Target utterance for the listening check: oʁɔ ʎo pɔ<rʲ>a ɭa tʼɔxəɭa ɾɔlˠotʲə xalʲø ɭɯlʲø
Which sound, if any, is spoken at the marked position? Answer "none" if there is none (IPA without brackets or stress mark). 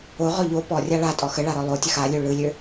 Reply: rʲ